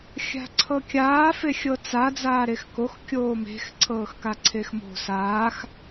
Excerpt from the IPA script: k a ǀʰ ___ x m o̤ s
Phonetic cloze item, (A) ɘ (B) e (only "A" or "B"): B